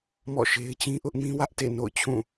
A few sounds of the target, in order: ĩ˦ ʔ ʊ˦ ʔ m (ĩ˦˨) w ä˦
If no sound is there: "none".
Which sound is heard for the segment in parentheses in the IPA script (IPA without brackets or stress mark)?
ĩ˦